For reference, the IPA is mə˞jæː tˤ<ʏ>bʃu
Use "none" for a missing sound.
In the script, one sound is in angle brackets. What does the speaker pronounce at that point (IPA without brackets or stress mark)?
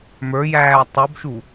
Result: u